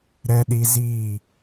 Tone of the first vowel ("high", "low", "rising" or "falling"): high